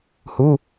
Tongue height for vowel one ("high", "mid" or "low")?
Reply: high